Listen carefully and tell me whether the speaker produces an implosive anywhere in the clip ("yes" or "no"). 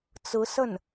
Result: no